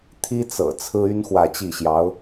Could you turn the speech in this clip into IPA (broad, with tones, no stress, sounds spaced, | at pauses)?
t̪ʰ i˥ t͡s ɤ̰˨˩ t͡sʰ ɹ̩˥ y˥ n x w ä˥˧ t͡ɕ i˥˩ ɕ j ɑ˧˥ ʊ̯